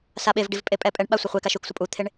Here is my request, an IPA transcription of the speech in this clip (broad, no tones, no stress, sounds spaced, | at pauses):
s a ɓ e v ɖ i v pʼ e pʼ ɛ pʼ ɛ ɳ ɓ a sʷ ʌ χʷ e k a ʃ u k sʷ ʌ pʼ u t̪ʰ e ɳ